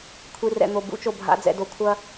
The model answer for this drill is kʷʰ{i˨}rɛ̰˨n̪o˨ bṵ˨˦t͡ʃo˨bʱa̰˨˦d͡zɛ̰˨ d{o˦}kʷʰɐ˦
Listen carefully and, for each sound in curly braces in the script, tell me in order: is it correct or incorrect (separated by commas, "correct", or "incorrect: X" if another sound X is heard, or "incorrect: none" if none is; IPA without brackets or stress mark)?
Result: correct, incorrect: o˧